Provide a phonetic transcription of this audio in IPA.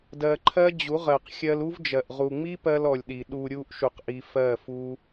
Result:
d ɜ˧ ǃʰ ɜ˦ d͡ʑ u˨˦ ʁ ɜ˨ q xʲ ɜ˧ l u˦ v d͡ʒ ɜ˨ ʔ ʁ u˨ ŋ͡m i˦ p ɜ˧ l ɔ˨ lʲ ɗ i˨ ɗ u˨ ɾʲ u˧ ʔ ʃ u˧ q ʔ i˧ f ɜ˦˨ f u˦

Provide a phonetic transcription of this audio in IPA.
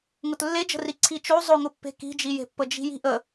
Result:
ŋ ʊ t lː e d͡ʒ ə̤ r i ǀʰ i t͡ʃ o zˤ ʊ ŋ ʊ pː e̤ k i̤ d͡ʒ i j e̤ pː ə d͡ʒ i̤ j i̤ ʔ ə

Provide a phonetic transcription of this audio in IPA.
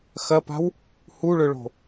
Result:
x ɐ p a̤ w | h u ɭ ɵ ɭ o̤

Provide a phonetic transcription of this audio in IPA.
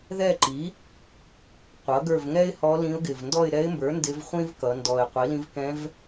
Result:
ð ɛ˦˨ ǃ i˩˥ | qʷ ʌ˩˥ ɡ ə˞˦˨ v ŋ ɛ˥ ɪ̯ h ɔ˧˥ l ĩ˧˥ ʊ̯ ɡ ɪ˨˩ v n d ɔ˦˨ ɪ̯ ɾ ɛ˧˥ ɪ̯ m b ə˞˩˥ n d ɪ˧˥ v χʷ ĩ˥ v k ʌ˩˧ n d ɔ˨˩ ɪ̯ qʷ i˩˥ l ĩ˧˥ v k ɛ̃˧˥ v

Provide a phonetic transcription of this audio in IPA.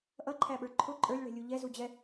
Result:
ʔ ʌ ǃʰ æ ɓ ə˞ ǃʰ ʊ ǃʼ ə˞ lʲ ɭ ɛ̤ lʲ u ʎ ɛ z u d͡ʑ ɛ

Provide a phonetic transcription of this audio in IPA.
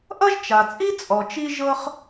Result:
ʔ ʌ˥ ʒ t͡ʃ a˩ t͡sʼ i˥ t͡sʼ ɔ˩ t͡ʃ i˥ ʒ ɤ˥ χ

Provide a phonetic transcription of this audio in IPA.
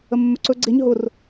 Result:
ə mː ɵ ǀ ɵ ɡ͡ǀ e ɲ ɦ ʊ r

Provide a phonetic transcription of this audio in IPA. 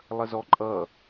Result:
lˠ ə z ɔ ǃʼ ʌ

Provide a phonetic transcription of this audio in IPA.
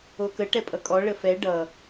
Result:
o k ə ʈ ɛ pʼ ʌ kʼ ɔ ɭ ə f ɛ ɖ ʌ

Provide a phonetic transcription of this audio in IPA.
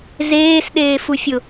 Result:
z eː s ɗ eː f u fʲ ʊ

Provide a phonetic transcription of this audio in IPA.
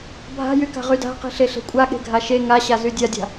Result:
bʱ a̤ j y k a̤ ʁ y d a̤ q i̤ ɬ e ɬ e̤ kʷʼ a ɠ e̤ ɡʱ a ʃ e ŋ a ɕ a z y dʲ a dʲ a̤

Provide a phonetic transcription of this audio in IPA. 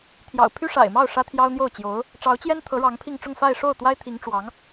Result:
t̪ʰ j ɑ̰˨˩ ʊ̯ pʰ y˥ ʂ a̰˨˩ ɪ̯ m ɑ˥˩ ʊ̯ ʂ ä˥ t̪ʰ j ɑ˥ ʊ̯ n̪ j o˥˩ ʊ̯ t͡ɕ j o˧˥ ʊ̯ | ʈ͡ʂ ɑ˧˥ ʊ̯ t͡ɕ j ɛ˥ n t̪ʰ ɤ˧˥ ɻ ɑ˧˥ ŋ pʰ i˥˧ ŋ ʈ͡ʂ ʊ˥˧ ŋ f a˥˧ ɪ̯ ʂ o˥˩ ʊ̯ t̪ w a˥ ɪ̯ t̪ʰ i˧˥ ŋ ʈ͡ʂ w ɑ˧˥ ŋ

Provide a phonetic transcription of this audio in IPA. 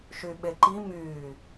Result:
ʃ y ɓ e ǃ i m yː

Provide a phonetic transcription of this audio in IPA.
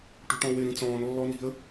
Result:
ʈ ṳ ʈ ɔ̃ w ɪ ɾ ĩ t͡s ɔ̃ː n lː ɔ n i̤ ə̯

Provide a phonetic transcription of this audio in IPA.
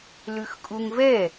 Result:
l ʉ x kʼ u ŋ v ɛ

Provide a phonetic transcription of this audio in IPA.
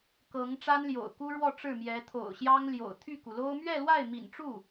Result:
k ɤ˧˥ ŋ ʈ͡ʂ a˥ n l j o̰˨˩ ʊ̯ k u˥ ɻ w ɔ˥˧ ʈ͡ʂ ɻ̩˥˩ m j ɛ˧˥ t̪ʰ o̰˨˩ ʊ̯ ɕ j ɑ˥ ŋ l j o̰˨˩ ʊ̯ t̪ʰ y˥˩ k u˩ l o˥ ʊ̯ m ɥ ɛ˥˧ l w a˥˩ ɪ̯ m ḭ˨˩ n ʈ͡ʂ u˥˩

